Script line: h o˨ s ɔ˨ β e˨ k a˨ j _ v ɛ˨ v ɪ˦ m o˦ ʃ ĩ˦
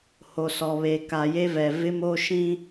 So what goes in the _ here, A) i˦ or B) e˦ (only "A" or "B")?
B